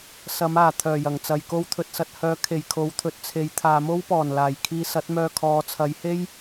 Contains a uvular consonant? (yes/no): no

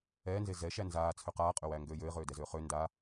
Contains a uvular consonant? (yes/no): yes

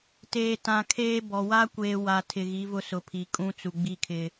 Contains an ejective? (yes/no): yes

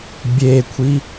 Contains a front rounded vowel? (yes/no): no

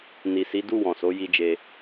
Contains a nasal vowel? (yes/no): yes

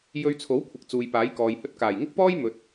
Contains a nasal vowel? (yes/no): no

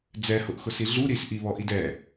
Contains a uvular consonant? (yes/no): no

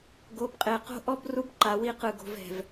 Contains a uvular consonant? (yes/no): yes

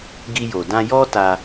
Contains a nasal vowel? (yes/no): yes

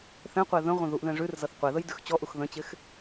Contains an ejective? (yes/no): no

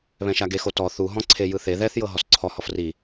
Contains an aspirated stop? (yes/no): yes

